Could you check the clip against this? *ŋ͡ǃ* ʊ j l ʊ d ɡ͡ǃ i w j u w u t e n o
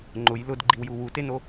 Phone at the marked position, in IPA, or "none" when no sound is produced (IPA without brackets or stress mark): ŋ͡ǃ